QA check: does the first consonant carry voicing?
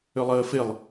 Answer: yes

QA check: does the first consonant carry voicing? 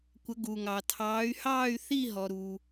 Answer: no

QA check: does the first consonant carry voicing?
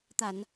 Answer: no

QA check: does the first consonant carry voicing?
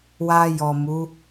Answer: yes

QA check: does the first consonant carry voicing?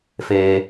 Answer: no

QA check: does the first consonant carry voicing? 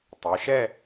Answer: no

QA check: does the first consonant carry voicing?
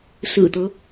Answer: no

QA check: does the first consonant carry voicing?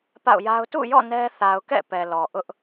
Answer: no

